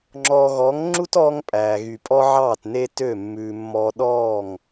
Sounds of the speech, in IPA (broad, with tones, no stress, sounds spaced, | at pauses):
ŋ͡ǁ ɔː˨ ɣ ɔ˨˦ ŋ ŋ͡ǁ u˦ t ɔː˧ ŋ pʼ æː˨ ɣ y˨ pʼ ɔ˦ ʕ ɑː˦˨ t n e˦ t ø˦˨ mː ʉː˨ mː ɔ˧ ɗ ɔː˦˨ ŋ